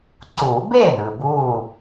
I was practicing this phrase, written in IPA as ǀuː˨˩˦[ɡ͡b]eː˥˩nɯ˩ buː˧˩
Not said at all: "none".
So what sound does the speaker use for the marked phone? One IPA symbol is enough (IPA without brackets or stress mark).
b